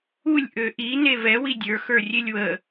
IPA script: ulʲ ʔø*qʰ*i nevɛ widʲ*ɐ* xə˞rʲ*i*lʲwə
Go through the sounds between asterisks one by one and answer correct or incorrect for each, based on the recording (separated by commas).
incorrect, incorrect, incorrect